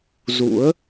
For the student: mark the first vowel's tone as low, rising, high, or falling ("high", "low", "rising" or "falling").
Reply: rising